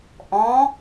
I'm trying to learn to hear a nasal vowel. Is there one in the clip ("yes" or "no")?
yes